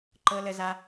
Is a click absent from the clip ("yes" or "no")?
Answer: no